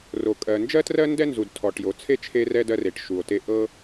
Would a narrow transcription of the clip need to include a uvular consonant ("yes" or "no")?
no